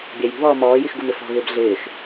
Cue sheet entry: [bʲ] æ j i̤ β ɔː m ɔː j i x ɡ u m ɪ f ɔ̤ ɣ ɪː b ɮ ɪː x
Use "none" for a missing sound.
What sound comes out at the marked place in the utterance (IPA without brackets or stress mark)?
bʲ